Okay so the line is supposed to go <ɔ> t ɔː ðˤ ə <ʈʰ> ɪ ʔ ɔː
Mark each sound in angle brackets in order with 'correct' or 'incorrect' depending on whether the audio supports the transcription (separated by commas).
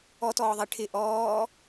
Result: correct, correct